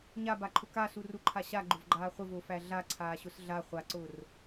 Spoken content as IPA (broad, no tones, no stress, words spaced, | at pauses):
ɲabaǃʰʊ kasuruǃʰa ɕaɡ͡ǃʊvɡ͡ǃaː χʷəvʊːfæ ɮaǀʰaːɕʊs ɮa χʷaǀʊːr